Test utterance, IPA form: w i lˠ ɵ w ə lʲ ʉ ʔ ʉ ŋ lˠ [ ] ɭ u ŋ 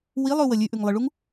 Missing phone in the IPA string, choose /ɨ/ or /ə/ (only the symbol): ɨ